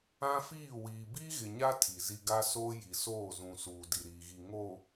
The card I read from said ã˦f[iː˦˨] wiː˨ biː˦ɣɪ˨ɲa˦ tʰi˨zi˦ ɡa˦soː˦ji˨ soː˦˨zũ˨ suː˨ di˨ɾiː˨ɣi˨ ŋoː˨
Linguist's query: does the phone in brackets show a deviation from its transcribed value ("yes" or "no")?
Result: no